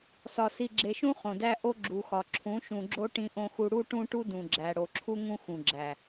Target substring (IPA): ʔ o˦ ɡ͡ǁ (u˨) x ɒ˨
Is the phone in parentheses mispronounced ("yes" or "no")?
no